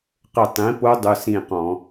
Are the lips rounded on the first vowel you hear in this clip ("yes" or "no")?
no